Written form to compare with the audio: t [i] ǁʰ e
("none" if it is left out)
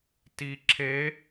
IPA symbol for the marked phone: i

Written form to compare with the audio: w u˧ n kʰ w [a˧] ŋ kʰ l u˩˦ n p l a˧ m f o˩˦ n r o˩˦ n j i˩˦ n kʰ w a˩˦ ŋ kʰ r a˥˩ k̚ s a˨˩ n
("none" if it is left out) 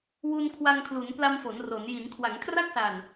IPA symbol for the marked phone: a˧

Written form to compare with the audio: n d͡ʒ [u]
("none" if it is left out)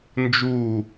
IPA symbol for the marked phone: uː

